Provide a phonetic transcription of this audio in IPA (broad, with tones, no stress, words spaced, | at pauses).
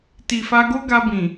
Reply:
ti˨fa˧ɡo˦ ɡa˧bĩ˨